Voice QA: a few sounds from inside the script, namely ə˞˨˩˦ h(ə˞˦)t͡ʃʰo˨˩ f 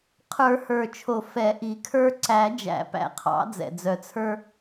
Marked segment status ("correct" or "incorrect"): incorrect